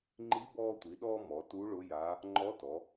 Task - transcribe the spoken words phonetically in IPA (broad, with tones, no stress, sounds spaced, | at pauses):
ŋ͡ǃ i˧˥ b ɔː˧ tʷ i˩˧ ɗ ɔː˧ m ɔ˩˧ t u˧˥ ɭ ʊ˧˥ j a˧˥ | ŋ͡ǃ ɔ˧˥ t ɔ˩˧